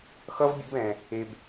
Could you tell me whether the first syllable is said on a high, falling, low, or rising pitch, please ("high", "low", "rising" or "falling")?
high